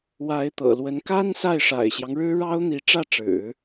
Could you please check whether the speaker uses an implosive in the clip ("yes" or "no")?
no